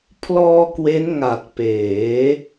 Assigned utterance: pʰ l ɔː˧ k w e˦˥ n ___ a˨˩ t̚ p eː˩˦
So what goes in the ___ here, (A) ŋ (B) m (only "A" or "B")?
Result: A